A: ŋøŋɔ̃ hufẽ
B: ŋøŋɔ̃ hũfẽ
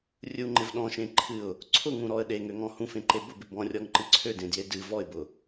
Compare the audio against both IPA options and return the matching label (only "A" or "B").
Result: B